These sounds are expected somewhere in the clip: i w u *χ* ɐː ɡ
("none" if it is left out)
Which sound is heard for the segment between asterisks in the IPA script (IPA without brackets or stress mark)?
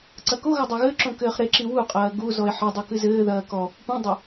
qʼ